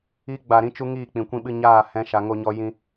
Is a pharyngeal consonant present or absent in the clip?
absent